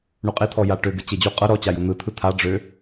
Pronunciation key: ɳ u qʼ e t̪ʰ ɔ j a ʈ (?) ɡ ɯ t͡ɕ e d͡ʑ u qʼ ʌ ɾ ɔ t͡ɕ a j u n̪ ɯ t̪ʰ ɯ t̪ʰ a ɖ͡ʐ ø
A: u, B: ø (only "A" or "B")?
B